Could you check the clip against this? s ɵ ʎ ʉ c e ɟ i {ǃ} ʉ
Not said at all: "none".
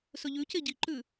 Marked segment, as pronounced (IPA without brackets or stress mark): ǃ